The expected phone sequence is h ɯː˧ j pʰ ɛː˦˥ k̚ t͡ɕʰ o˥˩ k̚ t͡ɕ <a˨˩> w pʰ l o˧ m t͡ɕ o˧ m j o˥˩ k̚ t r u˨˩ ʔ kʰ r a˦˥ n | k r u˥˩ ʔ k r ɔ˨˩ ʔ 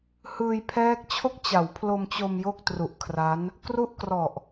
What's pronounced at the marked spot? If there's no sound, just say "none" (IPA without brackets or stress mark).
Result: a˩˦